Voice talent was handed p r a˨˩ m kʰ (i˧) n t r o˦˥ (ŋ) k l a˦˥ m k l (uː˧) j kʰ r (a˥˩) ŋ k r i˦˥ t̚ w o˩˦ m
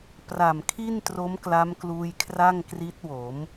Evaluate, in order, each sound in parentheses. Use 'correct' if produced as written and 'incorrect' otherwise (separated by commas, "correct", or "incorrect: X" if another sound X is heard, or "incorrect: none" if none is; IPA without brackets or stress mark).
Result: incorrect: i˥˩, incorrect: m, correct, correct